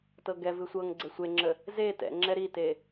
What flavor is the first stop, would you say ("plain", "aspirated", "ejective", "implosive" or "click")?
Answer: plain